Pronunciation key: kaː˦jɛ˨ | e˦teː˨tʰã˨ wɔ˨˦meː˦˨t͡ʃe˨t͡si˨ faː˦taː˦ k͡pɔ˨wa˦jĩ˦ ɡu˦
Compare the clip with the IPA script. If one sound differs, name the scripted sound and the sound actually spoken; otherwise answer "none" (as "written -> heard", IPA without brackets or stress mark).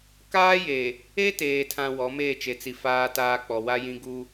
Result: ɛ˨ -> e˨